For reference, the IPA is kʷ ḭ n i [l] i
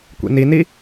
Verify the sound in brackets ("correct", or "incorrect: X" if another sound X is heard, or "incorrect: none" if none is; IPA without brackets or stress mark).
incorrect: n